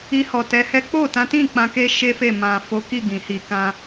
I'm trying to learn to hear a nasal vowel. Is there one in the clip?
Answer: yes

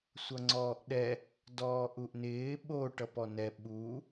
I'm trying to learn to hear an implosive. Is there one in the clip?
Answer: yes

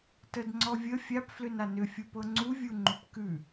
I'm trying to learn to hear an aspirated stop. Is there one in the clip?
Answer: no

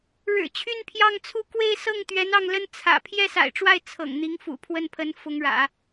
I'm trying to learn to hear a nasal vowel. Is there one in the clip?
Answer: no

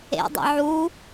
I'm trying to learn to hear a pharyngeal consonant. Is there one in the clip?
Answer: yes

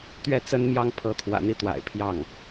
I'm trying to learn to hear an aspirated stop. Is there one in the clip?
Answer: yes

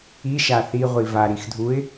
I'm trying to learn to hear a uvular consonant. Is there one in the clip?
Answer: yes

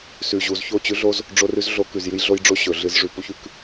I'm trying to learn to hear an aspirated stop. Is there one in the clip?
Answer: no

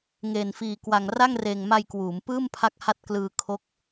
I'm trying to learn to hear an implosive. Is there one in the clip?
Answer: no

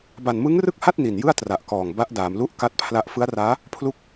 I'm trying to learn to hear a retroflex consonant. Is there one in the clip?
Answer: no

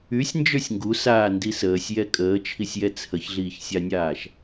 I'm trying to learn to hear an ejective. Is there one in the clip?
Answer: yes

